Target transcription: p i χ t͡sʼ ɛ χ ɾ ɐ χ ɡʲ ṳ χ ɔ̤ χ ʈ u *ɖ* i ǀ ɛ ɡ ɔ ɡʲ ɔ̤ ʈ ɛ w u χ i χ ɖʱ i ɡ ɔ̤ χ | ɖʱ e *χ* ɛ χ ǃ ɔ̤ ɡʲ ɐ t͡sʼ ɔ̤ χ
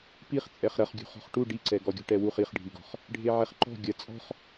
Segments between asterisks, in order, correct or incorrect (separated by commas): correct, incorrect